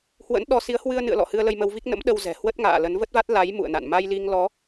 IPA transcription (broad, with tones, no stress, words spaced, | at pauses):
hwə̰˧˥nɗɔ˧ si˨˦ə̯hwɨ˧ə̯nɨ̰˧˨ə̯lɔ̰˧˨ hɨ˧ə̯lə˧jmə˧wvi˦˥k̚ nə̰˧˥mɗə˧w zɛ̤˨˩hwə˦˥t̚ŋa̰ː˧˨ lə˨˦nvə˦˥t̚va˦˥t̚ la˨˦j mṵ˧˨ə̯na̰˧˨n ma˧jli˧ŋlɔ˨˦